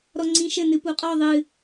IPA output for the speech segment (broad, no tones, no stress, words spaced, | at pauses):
ɾɔŋ͡ǀĩʃɘ nɨpuqʼɔ ðˤɨ